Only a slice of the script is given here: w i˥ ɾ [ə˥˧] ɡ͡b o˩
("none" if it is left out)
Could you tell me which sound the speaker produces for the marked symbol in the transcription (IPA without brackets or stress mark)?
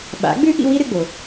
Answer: ɨ˥˧